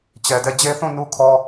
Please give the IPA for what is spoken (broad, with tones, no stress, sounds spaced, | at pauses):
t͡ɕ ɛ˨ d ɛ˦˨ d͡ʑ e˦ θ ũ˦˨ n u˦ kʰ ɔ˦